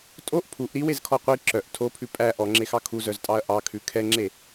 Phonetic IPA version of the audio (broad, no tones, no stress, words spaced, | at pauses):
tʼoʔ pʰuʔ ɾiwezkʰɔ qʷi ǁœʔ tʰopʰʉ pʼæ ʔɔŋ͡ǁexɑ kʰuzœztʼɑɐ̯ ʔɑkʰʉ kʰɛŋ͡ǁe